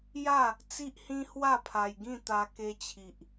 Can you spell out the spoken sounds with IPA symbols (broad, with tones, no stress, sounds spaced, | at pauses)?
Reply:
j a˥˧ | t͡s i˦ ʔ h ĩ˦ h w a˥˧ pʰ a˧ j ɡ ĩ˥˧ t̪ a˧ k e˧ t͡ɕʰ i˨ ʔ